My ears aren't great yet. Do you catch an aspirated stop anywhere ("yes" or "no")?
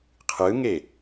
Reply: yes